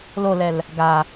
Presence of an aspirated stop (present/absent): absent